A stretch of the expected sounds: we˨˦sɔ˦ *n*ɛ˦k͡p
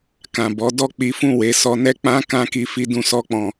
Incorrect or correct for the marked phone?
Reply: correct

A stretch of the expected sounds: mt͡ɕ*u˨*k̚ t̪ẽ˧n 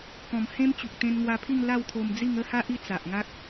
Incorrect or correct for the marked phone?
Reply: correct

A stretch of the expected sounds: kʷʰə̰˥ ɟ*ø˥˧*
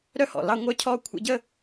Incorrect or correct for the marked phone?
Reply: incorrect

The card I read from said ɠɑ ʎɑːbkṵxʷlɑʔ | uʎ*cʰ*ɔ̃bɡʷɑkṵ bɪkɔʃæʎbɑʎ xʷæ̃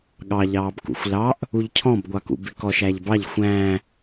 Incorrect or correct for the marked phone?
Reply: correct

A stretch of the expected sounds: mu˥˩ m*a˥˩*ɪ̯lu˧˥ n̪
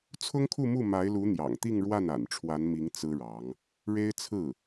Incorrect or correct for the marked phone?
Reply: incorrect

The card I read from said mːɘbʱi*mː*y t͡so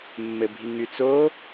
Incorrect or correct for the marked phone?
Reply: incorrect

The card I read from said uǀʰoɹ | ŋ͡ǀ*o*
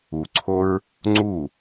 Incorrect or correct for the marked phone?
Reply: incorrect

